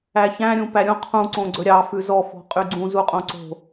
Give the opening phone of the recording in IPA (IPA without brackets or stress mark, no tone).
æ